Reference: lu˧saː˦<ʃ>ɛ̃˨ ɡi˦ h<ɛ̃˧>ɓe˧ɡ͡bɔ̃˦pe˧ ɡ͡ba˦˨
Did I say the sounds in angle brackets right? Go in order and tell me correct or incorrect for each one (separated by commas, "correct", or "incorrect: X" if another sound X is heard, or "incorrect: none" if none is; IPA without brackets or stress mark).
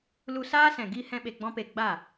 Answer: incorrect: s, incorrect: ɛ̃˦